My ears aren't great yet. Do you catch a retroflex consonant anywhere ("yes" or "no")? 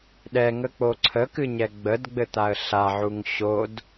no